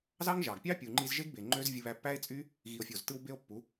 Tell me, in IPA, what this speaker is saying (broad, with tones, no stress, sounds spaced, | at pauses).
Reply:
z ɑ˦ ŋ ʒ ɑ˨ ɡ pʲ ɑ˦ pʲ u˨ ŋ͡ǃ i˧ z ʒ e˦ ɡ b e˨ ŋ͡ǃ ø˦ z vʲ ɯ˧ β æ˧ pː æ˦ e̯ t͡sʼ y˦ | ɣ i˨ o̯ fʲ o˨ z t ɯ˧ w b e˦ o̯ pː u˨˦